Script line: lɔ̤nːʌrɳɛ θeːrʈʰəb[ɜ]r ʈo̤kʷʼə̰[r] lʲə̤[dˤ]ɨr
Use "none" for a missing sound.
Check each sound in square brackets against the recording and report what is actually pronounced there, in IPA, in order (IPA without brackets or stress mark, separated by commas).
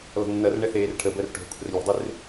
ɜ, r, dˤ